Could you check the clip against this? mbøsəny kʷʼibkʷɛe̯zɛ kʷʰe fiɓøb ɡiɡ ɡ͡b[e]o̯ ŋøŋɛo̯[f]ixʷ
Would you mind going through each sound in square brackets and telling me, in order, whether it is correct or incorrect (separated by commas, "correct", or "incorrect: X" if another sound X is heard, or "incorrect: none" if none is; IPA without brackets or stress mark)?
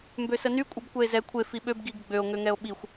incorrect: ø, incorrect: ɓ